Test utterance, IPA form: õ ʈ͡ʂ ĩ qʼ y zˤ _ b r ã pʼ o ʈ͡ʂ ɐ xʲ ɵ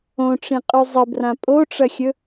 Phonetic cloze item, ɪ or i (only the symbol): ɪ